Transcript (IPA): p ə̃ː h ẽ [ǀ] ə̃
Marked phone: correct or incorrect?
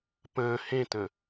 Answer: incorrect